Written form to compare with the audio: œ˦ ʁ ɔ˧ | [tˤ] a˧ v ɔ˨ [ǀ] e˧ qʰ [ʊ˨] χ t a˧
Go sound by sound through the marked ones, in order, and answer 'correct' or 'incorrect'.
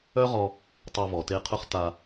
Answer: correct, incorrect: t, incorrect: ʊ˦

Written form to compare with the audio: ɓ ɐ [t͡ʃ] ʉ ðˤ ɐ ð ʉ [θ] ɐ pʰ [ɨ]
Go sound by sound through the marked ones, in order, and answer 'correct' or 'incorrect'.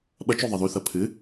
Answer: correct, correct, correct

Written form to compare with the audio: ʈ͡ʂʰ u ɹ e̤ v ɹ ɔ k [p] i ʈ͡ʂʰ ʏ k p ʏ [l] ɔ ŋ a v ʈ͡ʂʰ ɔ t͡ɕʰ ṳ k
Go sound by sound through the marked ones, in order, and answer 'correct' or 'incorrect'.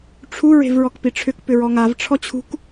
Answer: correct, incorrect: ɹ

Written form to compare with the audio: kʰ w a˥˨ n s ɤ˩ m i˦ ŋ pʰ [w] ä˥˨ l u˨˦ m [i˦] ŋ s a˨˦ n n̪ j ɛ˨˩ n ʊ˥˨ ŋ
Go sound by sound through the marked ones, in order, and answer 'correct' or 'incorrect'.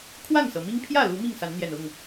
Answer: incorrect: j, incorrect: i˥˨

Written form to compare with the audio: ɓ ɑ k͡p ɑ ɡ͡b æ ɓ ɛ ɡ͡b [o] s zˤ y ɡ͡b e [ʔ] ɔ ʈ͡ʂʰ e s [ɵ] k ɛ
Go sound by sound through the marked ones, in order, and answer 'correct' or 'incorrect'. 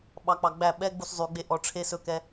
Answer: incorrect: u, correct, correct

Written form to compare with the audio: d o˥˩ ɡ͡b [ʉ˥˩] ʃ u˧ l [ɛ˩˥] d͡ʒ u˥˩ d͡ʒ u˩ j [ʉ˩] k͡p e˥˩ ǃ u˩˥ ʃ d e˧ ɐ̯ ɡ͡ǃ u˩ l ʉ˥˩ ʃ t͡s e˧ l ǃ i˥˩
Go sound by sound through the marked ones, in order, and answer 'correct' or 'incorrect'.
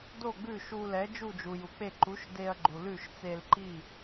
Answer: correct, correct, incorrect: u˩

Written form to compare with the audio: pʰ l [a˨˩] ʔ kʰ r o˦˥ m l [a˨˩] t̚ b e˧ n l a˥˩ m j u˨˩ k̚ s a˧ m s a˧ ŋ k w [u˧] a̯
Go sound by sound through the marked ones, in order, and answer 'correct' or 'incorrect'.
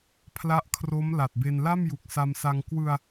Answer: incorrect: a˦˥, correct, incorrect: ɯ˧

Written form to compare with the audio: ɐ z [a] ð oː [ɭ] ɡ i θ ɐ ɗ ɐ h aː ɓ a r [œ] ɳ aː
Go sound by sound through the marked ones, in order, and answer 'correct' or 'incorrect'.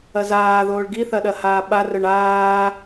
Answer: incorrect: aː, correct, correct

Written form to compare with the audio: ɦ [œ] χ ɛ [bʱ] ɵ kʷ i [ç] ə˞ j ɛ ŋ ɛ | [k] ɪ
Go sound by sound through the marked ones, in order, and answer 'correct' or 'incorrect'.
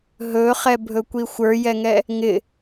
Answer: incorrect: ɵ, correct, incorrect: xʷ, incorrect: ŋ

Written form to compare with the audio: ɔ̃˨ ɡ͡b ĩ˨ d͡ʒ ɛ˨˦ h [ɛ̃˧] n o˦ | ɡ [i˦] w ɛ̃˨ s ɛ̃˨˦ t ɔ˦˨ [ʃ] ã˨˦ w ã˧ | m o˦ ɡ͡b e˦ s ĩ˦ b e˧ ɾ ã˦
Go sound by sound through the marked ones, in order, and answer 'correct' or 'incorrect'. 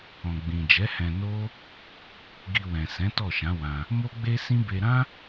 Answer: correct, incorrect: i˧, correct

